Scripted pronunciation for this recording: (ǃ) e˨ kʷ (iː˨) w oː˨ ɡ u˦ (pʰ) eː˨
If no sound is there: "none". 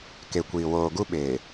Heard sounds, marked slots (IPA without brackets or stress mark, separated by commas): k, iː˨, ɓ